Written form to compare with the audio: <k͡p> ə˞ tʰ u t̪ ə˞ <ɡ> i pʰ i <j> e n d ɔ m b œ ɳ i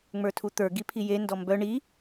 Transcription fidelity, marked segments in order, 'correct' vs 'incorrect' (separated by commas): incorrect, correct, correct